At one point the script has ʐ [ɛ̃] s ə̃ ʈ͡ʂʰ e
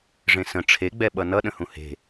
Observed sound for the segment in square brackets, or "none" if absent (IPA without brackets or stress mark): ẽ